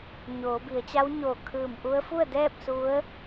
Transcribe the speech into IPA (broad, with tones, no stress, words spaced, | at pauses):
ɲoː˩˧bi˩˧ə̯ t͡ɕa˧˥wɲoː˧˩ kʰɯː˧˩mʔu˧˥ə̯ fu˥˨ə̯dɛː˥˨p̚ su˧˥ə̯